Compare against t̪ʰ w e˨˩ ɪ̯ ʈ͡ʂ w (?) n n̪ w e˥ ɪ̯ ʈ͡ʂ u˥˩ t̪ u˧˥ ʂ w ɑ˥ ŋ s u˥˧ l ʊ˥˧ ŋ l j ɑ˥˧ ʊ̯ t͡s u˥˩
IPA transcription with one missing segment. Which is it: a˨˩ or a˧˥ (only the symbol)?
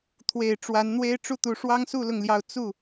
a˧˥